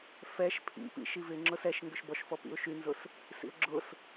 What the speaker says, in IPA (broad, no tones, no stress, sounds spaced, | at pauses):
f ɛ ʃ pʰ ḭ p ḭ ʃ i v ɪ ŋ͡ǁ ʊ s ɛ ʃ ŋ ɡ ʏ ʃ b ɔ ʃ f ɔ p ḭ ʊ̯ ʃ y n z ʊ s | s ḭ ʊ̯ ɡ͡ǁ ʊ s